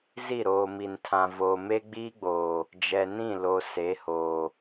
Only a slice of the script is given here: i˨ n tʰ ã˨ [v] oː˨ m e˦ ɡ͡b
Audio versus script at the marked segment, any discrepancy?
no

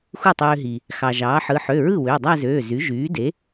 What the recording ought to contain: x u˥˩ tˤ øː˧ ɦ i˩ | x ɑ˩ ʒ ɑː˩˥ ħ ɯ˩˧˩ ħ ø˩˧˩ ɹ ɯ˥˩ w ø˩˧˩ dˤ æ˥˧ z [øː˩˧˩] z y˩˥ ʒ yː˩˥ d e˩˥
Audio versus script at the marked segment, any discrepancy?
no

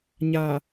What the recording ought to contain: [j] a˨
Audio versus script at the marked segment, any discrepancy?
yes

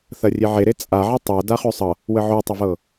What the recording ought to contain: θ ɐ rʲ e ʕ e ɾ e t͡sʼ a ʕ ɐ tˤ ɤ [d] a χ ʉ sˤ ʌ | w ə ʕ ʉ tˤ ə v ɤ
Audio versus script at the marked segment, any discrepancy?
no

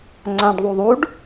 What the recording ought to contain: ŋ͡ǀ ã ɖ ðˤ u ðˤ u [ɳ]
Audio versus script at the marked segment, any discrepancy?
yes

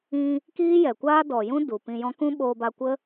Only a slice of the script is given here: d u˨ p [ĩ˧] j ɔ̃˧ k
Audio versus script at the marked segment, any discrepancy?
no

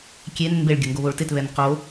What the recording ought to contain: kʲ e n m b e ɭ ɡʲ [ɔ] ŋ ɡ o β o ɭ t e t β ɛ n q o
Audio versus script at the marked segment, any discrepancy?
yes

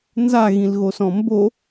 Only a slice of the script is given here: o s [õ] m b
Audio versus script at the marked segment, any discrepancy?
yes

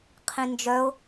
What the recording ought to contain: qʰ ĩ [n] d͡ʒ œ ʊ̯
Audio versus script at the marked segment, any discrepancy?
no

